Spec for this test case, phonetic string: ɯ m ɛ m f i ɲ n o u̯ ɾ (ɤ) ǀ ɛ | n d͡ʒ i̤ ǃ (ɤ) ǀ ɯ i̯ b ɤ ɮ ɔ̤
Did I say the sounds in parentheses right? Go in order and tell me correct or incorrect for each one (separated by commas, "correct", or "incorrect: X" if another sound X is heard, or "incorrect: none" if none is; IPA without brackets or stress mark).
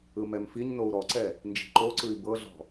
incorrect: ɔ, incorrect: o